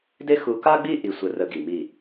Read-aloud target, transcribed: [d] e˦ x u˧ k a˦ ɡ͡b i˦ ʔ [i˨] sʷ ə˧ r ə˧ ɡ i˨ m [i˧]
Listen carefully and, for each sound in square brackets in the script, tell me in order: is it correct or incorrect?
correct, incorrect: i˧, incorrect: i˦˨

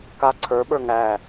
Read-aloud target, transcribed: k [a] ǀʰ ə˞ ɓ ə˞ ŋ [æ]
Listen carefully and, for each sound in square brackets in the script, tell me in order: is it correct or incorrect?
correct, correct

